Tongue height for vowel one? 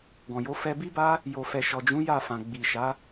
mid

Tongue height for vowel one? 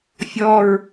mid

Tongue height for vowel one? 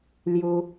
high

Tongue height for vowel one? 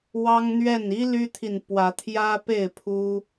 low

